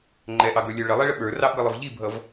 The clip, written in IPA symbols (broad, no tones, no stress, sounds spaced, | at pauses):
ŋ͡ǃ ɛ ʔ ɑ ɡ ə˞ lʲ ə˞ ɭ ə lˠ ɛ ɭ ə ɓ ə˞ r ɑ ʔ ɡ ʌ lˠ ə v ʎ i bʱ ʌ v